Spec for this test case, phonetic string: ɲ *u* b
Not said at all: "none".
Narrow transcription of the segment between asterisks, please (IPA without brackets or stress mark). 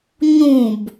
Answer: ũ